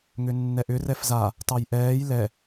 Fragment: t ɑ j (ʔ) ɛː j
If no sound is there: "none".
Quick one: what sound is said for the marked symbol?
ʔ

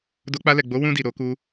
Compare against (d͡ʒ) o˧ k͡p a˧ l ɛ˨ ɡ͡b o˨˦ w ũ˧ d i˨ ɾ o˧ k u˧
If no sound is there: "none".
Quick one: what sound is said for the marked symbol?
d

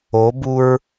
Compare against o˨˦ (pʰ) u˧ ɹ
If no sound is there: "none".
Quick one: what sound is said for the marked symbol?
b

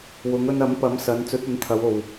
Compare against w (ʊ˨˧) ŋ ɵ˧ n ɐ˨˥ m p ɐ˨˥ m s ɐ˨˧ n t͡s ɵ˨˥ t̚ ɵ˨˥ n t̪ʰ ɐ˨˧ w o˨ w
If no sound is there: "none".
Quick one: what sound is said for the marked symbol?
ʊ˨˧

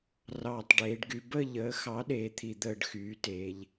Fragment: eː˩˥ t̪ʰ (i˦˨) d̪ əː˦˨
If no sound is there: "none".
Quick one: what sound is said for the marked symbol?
i˨˩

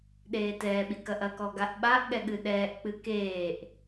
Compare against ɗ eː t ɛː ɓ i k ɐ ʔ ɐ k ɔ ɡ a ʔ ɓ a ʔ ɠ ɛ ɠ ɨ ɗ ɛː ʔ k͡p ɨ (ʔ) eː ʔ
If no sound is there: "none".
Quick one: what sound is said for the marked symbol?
k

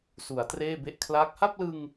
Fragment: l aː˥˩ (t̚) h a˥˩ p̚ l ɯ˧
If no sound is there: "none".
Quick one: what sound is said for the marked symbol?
k̚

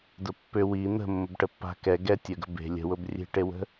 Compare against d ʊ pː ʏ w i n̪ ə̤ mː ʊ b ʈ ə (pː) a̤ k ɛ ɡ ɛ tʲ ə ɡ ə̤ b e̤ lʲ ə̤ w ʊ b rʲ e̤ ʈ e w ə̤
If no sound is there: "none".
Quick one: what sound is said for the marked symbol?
pː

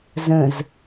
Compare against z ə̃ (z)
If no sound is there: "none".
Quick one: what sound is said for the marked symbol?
z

